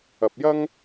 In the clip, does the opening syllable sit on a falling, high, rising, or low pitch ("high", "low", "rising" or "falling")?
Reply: low